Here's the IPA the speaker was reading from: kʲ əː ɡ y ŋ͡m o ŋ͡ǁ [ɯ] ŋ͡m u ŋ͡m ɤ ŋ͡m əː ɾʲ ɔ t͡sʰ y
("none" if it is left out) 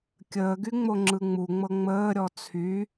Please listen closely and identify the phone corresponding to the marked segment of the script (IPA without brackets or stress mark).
ɯ